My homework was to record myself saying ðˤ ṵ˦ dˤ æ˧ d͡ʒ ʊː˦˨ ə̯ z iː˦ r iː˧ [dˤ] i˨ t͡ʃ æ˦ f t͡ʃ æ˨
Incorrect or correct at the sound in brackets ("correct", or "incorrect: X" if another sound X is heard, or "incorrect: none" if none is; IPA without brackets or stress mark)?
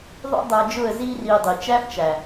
correct